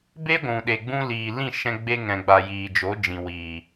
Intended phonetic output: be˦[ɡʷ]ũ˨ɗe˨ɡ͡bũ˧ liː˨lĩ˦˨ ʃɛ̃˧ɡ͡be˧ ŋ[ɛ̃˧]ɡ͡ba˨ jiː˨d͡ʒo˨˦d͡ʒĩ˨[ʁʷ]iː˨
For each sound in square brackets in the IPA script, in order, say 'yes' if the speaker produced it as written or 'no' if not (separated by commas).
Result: yes, no, no